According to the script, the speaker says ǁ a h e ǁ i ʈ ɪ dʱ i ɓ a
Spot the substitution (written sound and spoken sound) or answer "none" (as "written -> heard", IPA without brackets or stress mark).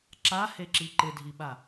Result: ʈ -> ǃ